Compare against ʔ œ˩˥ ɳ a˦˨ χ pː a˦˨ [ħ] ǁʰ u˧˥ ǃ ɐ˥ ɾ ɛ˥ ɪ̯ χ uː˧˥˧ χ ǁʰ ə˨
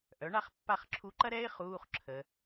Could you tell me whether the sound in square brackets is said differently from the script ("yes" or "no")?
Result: yes